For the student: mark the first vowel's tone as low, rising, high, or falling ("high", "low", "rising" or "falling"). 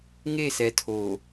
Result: falling